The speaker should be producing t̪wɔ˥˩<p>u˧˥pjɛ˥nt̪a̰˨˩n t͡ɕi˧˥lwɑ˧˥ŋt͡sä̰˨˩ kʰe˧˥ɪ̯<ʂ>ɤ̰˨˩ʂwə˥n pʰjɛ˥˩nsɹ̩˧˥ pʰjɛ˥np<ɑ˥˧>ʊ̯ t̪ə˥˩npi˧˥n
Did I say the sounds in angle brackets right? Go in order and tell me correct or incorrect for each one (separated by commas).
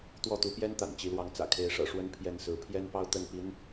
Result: incorrect, correct, correct